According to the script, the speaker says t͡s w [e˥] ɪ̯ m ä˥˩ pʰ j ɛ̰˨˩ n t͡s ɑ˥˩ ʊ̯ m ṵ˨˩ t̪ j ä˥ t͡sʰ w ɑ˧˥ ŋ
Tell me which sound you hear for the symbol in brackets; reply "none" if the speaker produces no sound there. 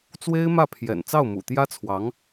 e˥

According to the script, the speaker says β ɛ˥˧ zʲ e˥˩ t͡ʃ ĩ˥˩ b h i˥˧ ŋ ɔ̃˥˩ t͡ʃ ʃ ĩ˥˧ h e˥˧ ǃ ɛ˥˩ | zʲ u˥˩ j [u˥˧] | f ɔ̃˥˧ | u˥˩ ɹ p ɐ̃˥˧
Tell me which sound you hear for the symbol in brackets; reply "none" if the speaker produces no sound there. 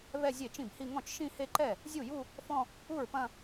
u˥˧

